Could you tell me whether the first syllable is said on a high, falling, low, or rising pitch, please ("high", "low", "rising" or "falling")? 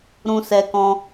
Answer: high